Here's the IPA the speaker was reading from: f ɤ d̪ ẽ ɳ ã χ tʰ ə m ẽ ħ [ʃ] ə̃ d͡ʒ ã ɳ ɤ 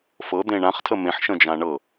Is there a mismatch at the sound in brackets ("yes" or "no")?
no